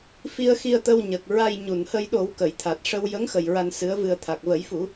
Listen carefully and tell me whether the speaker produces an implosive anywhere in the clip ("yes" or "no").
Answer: yes